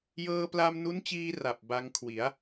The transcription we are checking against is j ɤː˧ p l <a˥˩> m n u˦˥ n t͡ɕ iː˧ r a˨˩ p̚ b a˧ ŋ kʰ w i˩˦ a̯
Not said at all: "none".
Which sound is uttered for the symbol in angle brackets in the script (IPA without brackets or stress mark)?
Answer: a˧